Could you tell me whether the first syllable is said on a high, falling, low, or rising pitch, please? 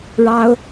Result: high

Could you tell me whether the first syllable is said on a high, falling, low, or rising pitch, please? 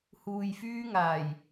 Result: low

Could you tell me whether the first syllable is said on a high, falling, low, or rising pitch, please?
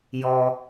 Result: low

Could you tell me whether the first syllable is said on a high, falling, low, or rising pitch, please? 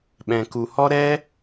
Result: low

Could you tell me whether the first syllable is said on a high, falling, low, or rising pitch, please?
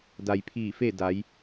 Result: low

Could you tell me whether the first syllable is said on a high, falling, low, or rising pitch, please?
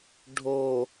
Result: low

